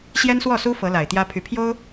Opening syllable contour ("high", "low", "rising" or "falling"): high